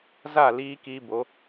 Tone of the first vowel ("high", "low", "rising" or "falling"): falling